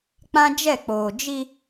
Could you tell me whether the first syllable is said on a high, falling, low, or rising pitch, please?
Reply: high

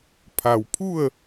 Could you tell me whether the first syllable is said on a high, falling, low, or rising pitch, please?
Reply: low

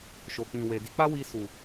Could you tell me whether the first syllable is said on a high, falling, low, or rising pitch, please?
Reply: low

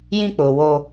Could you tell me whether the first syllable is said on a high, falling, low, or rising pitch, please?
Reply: high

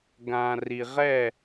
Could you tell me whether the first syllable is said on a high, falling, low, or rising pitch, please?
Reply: low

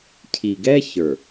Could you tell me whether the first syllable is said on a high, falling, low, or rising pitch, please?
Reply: low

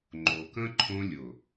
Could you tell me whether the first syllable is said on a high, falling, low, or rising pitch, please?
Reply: low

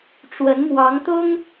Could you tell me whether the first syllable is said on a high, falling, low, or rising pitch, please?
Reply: rising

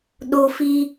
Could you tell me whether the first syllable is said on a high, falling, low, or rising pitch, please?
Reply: high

